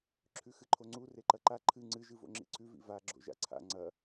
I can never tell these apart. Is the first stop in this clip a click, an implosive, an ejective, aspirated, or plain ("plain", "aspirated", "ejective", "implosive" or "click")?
click